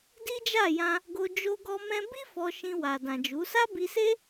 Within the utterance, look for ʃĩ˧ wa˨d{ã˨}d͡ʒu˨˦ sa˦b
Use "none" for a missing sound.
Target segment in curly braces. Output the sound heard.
ã˨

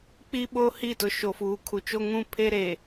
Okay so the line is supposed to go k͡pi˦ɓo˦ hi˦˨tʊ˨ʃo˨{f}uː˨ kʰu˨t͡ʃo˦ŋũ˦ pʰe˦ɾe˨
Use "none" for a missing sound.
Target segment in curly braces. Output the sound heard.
f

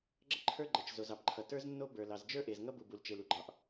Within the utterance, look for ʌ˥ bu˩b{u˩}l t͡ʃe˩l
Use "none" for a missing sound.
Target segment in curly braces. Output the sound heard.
u˩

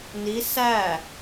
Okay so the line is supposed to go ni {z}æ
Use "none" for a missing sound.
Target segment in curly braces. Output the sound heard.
s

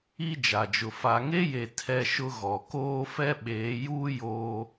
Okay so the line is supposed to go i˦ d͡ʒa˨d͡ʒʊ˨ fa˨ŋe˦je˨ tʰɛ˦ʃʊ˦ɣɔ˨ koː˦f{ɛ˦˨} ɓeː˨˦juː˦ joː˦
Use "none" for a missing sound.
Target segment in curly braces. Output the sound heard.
ɛ˦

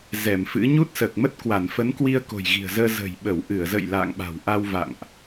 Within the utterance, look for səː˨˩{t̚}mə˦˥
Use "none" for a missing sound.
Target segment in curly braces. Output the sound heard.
k̚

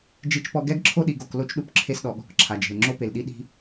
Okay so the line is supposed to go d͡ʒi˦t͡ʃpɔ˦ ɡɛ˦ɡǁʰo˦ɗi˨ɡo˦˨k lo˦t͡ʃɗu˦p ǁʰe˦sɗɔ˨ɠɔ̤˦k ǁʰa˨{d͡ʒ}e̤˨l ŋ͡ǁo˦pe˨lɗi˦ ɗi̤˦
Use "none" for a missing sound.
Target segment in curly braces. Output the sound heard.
d͡ʒ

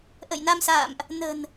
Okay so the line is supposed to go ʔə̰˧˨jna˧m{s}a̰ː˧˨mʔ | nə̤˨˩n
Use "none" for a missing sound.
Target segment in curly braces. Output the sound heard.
s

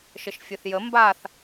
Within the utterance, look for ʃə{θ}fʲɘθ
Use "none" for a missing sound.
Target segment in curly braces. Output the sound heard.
ʃ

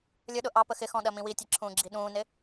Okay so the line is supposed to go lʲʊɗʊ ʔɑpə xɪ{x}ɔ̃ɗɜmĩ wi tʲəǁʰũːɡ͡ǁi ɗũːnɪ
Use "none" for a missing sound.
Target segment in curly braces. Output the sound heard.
x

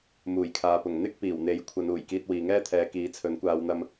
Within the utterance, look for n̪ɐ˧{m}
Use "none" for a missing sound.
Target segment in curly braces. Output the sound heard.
m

